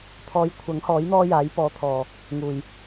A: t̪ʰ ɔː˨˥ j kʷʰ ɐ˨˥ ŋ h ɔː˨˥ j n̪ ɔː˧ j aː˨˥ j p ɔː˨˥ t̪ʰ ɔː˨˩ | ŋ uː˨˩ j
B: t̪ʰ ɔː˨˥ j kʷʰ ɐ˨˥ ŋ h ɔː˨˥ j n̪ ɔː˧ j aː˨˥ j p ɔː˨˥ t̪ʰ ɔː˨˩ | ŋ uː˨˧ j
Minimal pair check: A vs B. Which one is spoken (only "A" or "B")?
A